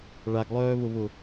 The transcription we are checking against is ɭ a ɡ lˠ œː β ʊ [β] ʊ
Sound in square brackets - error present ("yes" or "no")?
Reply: no